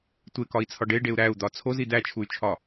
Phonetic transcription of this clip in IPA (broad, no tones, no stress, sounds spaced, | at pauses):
tʷ e k ɒ i̯ t͡sʰ ɒ ɖ e ɖ e u̯ ɾ æ u̯ d̪ ɒ t͡sʰ o z i d̪ æ t͡ʃʰ u y̯ t͡ʃʰ ɒ